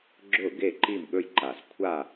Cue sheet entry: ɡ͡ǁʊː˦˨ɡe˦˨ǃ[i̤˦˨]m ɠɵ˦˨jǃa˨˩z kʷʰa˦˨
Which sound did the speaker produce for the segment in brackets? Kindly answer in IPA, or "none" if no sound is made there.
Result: i˦˨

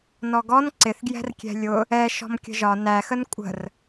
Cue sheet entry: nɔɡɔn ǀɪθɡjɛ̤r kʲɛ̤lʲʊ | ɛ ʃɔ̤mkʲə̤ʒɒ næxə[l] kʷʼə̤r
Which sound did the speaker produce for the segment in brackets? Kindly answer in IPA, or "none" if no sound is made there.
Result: n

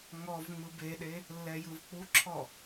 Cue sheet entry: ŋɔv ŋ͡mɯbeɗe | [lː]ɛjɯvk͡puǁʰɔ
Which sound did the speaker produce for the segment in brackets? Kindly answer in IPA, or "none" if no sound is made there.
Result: lː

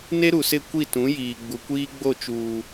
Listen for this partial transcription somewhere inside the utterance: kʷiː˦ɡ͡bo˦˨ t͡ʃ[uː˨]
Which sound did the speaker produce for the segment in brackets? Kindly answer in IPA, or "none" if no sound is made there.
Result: uː˨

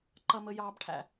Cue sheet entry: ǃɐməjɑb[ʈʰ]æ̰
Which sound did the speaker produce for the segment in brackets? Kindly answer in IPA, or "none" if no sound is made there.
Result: ʈʰ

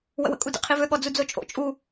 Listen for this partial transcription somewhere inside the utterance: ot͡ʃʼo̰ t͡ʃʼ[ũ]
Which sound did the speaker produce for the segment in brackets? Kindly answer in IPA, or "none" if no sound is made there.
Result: u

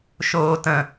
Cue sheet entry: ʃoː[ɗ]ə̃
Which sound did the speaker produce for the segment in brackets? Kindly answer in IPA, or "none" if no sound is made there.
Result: t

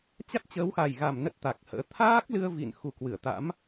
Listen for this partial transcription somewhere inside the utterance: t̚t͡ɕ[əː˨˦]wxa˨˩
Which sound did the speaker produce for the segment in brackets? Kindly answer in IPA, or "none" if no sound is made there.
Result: əː˨˦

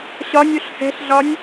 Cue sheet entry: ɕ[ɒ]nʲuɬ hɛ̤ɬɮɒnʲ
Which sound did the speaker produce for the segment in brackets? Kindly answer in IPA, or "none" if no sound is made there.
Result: ɒ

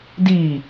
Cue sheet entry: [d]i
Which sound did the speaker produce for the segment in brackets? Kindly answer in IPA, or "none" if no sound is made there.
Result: d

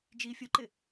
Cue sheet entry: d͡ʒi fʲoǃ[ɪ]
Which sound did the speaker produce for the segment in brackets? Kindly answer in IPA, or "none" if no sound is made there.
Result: ɪ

